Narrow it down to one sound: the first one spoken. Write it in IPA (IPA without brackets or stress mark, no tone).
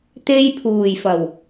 t̪